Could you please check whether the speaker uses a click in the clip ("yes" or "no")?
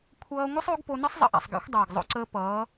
yes